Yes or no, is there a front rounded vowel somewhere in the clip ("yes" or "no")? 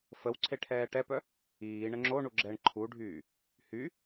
yes